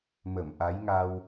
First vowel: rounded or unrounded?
unrounded